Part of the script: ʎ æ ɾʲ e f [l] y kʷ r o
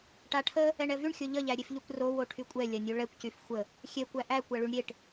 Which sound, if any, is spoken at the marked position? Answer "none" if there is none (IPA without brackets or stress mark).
ʎ